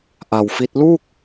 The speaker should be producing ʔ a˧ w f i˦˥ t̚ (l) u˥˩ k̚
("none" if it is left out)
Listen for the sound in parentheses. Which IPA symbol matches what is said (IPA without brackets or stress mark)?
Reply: l